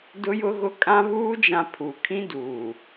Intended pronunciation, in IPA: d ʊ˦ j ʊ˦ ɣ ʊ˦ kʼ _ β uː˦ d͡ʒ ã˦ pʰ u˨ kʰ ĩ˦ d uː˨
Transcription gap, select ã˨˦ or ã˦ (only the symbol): ã˦